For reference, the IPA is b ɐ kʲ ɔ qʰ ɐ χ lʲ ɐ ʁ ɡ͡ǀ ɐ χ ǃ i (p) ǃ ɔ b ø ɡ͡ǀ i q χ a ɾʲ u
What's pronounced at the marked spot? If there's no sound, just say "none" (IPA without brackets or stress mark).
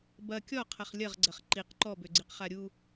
q